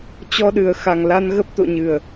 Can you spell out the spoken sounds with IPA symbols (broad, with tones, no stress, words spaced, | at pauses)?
t͡ɕɔ˧ɗɨ˨˩ə̯xa˨˩ŋla˧n ɣə˦˥p̚t̪o̰˧˨ɲɨ˨˩ə̯